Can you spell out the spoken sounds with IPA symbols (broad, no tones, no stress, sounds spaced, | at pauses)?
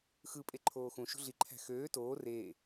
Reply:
x ɯ pʼ e ǃʰ oː x ũ ʃ ṳ ɮ i ǃʰ æ̤ x øː t oː r eː